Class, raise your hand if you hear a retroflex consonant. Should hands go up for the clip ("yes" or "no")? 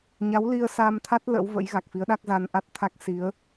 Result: no